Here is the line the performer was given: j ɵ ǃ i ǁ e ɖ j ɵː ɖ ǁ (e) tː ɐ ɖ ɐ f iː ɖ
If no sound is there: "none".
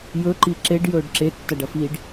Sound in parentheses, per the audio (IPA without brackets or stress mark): e